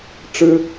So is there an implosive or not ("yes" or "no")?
no